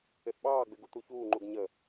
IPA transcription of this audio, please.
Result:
ɪ θ ɓ ɑː ɡ͡b ɪ ɡ u t̪ u ç uː ŋ͡ǃ u ɡ ɲ ə

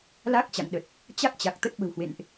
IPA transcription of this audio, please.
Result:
l a˦˥ k̚ t͡ɕ a̰˧˨ ŋ ɗ ə˨˩ t̚ | t͡ɕ a˦˥ k̚ t͡ɕ a˨˩ k̚ t̪ ə˦˥ t̚ ɓ ə̤˨˩ w h w ḛ˧˨ n ʔ

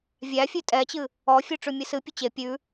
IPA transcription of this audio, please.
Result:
vʲ æ fʲ ʉ tʼ ɛ t͡ɕ ɨ | ɔ fʲ ʉ ʈ͡ʂ ʉ mʲ ɨ s ɨ pʲ ɵ t͡ɕ e pʲ ʉ

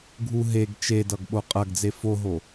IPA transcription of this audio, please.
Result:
ɡʱ u ɦ e ɡ t͡ʃ e d ʌ ɡ ɓ o qʼ ɐ ɡ d͡z e f o ɦ o

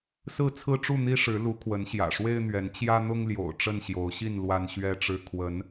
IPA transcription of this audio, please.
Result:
s ɹ̩˥˨ t͡sʰ ɹ̩˦ ʈ͡ʂ u˥˨ n̪ i˦ ʂ ɻ̩˨˦ l u˨˦ kʰ w ə˨˦ n ɕ j ä̰˨˩ ʂ w e˦ ɪ̯ n̪ ɥ ɛ˨˦ n t͡ɕ j ä˦ n̪ ʊ˦ ŋ l j o̰˨˩ ʊ̯ ʈ͡ʂ ə˥˨ n ɕ j o˨˦ ʊ̯ ɕ i˥˨ n l w a˦ n ɕ ɥ ɛ˦ ʈ͡ʂ ɻ̩˦ kʰ w ə˨˦ n

